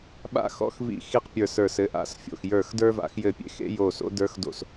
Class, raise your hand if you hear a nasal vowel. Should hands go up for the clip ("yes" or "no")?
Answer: no